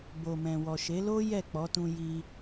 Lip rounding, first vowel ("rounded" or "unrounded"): rounded